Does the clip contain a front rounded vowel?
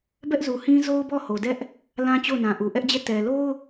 no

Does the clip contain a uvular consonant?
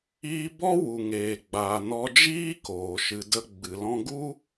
no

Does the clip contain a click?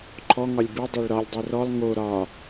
yes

